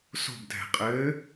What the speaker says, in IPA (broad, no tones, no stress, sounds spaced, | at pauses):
s o̤ b dʱ ɛ̤ qʼ ɘː